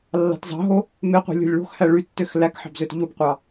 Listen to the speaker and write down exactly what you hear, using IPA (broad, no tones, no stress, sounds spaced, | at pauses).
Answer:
lː ɑ̤ t z ɑ̤ ɦ o | m e qʷ i̤ lʲ o̤ lʲ ɭ o̤ x h æ ɭ y tː ø x l æ k ħ ɑ̤ b z ø t ʎ u b qʷ ɑ